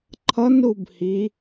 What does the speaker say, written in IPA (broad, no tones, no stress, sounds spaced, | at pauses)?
ǃʰ ʌ n ɾ u b h i